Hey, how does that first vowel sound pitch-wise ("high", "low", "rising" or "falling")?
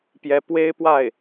rising